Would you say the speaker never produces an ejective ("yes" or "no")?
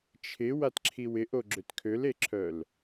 yes